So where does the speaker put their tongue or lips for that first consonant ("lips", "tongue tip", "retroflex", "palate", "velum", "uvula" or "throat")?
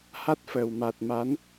throat